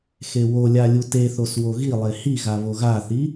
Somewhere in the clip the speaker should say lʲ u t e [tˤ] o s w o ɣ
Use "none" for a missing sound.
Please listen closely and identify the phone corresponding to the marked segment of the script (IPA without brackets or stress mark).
θ